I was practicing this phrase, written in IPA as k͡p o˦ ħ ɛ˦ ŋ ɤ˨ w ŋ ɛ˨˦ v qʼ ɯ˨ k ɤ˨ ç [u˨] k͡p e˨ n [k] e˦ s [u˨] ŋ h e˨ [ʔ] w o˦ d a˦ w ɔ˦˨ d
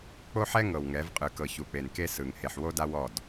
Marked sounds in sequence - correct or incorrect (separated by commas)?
correct, correct, incorrect, incorrect